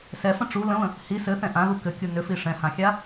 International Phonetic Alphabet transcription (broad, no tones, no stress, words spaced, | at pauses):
sɛfə̃ ʈ͡ʂu lə̃βə̃ | hi sɘθɛ̃ ʔãðu kɘkʲu nʏfi ʂɛ̃hãxʲa